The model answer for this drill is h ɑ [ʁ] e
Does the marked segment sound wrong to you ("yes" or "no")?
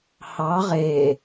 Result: no